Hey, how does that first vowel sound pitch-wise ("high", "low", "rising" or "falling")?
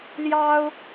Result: high